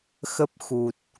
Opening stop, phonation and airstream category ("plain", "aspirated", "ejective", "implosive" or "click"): plain